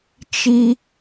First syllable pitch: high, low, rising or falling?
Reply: high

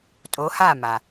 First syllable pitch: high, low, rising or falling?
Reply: rising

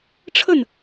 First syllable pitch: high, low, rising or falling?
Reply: falling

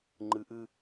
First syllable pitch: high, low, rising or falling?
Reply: low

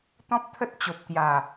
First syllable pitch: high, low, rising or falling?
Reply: high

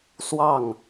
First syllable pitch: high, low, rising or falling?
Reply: falling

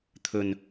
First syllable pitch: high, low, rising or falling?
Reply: low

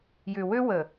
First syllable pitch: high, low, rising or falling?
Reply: low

